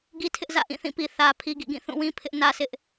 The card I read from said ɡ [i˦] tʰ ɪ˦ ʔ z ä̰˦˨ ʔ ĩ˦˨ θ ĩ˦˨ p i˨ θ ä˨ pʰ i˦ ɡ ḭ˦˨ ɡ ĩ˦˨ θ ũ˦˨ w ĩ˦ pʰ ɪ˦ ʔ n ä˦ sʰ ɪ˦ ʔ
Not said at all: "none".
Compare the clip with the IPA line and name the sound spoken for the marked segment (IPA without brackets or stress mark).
i˦